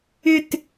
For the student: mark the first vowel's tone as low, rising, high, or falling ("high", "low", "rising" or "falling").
falling